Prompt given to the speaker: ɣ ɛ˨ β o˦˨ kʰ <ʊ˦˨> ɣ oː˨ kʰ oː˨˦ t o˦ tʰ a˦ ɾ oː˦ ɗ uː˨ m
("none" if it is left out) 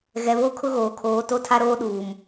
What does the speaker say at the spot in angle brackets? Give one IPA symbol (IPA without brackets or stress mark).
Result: ʊ˦